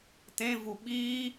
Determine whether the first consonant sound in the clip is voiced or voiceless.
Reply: voiceless